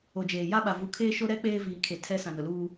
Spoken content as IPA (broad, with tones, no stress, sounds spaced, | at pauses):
o˨ d͡ʒ eː˨ j a˦ ɓ a˨ v u˨ kʰ eː˦ ʃ o˦ ɾ ɛ˦ k͡p eː˦ v iː˨ kʰ e˨ tʰ ɛ˦ s ã˨ n ʊ˨ l uː˦